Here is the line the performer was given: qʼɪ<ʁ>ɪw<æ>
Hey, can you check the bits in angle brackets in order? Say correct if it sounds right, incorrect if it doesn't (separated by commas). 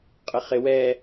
incorrect, incorrect